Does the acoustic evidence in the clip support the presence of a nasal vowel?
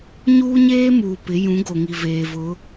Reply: yes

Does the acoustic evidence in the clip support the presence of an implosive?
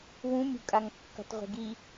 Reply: no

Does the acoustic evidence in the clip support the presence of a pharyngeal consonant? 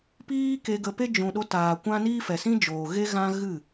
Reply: no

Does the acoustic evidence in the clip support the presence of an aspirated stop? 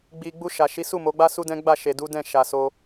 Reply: no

